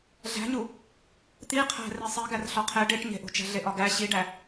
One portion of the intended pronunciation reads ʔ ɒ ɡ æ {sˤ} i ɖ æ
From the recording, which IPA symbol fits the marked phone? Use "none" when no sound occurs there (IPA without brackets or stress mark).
ɕ